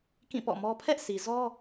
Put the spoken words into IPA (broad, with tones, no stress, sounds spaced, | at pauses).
k ĩ˦˨ p ɔ̰˦˨ m ɔ˦ pʰ ɛ˦ ʔ sʰ i˨ z ɔ˦